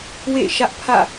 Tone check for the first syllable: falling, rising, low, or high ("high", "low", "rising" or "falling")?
falling